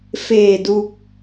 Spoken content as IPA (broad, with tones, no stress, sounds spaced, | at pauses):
f eː˧˩ d u˧ k̚